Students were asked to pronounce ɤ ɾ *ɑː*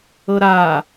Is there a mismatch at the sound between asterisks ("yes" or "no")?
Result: yes